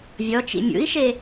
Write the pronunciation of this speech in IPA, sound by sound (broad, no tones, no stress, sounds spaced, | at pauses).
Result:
vʲ ɔ t͡ʃ ḭ mʲ ṵ i̯ ʃ e